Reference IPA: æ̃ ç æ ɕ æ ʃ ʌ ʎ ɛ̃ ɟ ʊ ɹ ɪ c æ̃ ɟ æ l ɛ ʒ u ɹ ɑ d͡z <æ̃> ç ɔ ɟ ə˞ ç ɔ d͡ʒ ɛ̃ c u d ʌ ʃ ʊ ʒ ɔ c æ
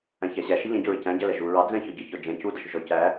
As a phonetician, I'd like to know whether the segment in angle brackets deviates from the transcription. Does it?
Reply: yes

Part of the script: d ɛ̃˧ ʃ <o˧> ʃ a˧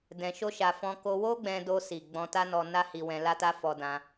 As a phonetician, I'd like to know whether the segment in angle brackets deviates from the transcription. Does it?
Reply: yes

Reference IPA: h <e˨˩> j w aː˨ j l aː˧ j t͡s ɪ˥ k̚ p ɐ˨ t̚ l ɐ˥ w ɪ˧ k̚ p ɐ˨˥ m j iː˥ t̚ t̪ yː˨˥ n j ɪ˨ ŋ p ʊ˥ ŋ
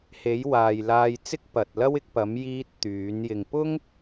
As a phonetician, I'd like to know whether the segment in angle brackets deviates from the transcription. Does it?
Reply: yes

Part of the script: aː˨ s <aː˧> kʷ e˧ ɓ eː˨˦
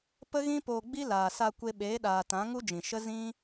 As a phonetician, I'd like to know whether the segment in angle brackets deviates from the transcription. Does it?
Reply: yes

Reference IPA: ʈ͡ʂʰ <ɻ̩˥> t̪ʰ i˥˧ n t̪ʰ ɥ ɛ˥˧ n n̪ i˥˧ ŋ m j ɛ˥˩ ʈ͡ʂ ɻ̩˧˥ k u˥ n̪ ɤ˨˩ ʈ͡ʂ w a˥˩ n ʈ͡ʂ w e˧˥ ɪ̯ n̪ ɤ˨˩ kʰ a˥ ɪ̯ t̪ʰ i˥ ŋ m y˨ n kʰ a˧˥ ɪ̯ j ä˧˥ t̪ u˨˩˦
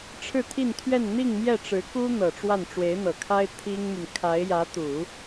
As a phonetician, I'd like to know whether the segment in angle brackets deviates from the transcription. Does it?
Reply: yes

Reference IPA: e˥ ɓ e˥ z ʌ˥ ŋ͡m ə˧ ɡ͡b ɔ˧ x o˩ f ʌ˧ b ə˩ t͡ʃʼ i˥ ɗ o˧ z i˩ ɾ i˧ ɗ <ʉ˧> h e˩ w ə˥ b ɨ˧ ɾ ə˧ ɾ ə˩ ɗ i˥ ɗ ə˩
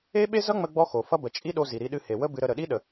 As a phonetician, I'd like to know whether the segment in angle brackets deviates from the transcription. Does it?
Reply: yes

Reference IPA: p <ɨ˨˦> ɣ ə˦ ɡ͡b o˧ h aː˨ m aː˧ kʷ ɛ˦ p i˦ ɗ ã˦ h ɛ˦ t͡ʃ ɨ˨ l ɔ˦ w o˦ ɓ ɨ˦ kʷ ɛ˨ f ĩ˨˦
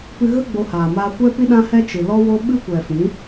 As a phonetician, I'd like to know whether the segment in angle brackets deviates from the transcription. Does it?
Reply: yes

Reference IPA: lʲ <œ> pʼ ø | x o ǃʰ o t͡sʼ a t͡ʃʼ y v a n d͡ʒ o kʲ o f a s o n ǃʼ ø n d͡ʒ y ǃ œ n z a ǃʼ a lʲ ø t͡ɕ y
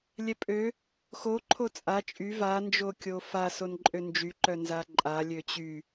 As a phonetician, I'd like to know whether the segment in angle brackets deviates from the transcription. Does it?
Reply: yes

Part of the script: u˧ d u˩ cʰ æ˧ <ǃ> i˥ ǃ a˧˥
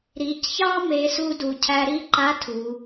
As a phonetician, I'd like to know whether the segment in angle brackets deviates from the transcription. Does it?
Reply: yes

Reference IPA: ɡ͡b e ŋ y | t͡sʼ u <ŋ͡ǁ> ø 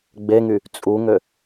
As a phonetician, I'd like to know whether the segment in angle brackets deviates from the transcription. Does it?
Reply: yes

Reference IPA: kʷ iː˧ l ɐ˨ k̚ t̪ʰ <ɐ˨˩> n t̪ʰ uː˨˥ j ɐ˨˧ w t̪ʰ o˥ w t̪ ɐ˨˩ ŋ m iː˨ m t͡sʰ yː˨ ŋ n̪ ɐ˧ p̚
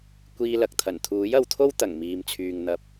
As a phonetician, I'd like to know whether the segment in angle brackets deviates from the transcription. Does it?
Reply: no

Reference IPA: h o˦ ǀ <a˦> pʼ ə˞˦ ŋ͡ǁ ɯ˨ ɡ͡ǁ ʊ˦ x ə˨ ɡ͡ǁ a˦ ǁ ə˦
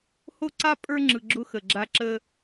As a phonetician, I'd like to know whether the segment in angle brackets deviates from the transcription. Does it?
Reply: no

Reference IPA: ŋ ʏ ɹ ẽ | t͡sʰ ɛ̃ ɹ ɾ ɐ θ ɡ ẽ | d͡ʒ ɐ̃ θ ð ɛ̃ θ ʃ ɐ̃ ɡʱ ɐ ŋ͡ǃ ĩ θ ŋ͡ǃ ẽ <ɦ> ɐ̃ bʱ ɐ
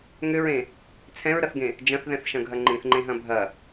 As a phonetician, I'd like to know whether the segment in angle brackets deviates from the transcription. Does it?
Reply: no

